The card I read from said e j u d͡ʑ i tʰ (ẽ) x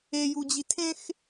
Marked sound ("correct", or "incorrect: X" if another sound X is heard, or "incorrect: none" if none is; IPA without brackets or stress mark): correct